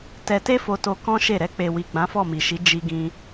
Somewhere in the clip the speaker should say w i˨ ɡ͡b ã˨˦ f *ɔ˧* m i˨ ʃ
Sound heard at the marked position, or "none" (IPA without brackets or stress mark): ɔ˦˨